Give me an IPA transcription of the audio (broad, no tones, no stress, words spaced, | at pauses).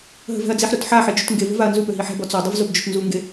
ɦə̤vɛ̤ɐ̯d͡ziħɾut ħaħe d͡ʒutŋɡevə̤ vaɐ̯nzupø ɦiħɛ̤bɔ t͡sɔdˤəv zobd͡ʒotnzuŋɡe